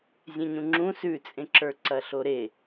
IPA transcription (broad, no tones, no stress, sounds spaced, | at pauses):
zʲ ẽ ɲ ũ ŋ͡ǁ ũ s ʉ t͡sʼ ẽ ǁ ə˞ ǀ ɐ ɬ o ɾ e